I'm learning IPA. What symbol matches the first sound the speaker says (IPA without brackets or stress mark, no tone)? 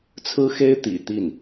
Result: t͡sʰ